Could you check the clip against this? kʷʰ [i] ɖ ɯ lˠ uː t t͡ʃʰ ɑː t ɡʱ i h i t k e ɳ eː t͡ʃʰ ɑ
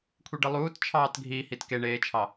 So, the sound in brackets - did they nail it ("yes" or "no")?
yes